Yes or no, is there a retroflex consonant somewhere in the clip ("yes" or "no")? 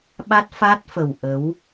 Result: no